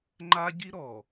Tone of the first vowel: high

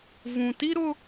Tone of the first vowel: low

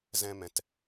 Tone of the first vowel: high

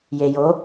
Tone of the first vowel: low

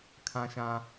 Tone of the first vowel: high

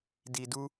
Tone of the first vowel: low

